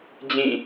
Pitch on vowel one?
falling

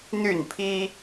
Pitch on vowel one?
falling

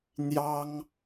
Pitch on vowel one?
high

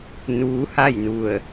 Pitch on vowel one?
rising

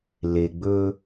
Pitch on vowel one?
low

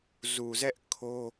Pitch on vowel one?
low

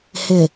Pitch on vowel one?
low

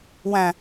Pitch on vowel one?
low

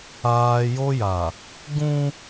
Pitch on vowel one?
high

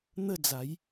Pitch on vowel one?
falling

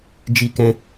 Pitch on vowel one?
high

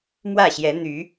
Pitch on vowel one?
falling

